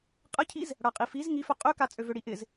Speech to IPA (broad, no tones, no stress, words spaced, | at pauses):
qʼəcʰiz | ɽaqʼifiz ŋifœ qʼøka t͡sʼøvøɽiʔɪz